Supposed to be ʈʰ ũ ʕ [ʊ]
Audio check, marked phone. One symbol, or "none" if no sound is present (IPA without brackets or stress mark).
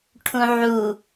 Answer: u